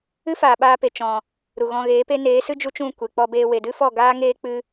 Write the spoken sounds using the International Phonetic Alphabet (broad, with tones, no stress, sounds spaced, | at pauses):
ɨ˦ f aː˨ ɓ aː˧ p e˨ t͡ʃ ɔ̃˨ | ɾ u˨ ɣ ɔ̃˧ ɣ eː˨˦ p e˦ n eː˨˦ s ɨ˦ d͡ʒ u˦ t͡ʃ ũ˦˨ kʷ e˨ k͡p ɔ˧ b eː˧ w e˨ d ɨ˦ f ɔ˦˨ ɡ aː˦ ŋ eː˧ k͡p ɨ˦